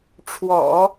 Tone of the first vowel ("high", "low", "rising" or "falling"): low